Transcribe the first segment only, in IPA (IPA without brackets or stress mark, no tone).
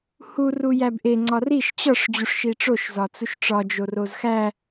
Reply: h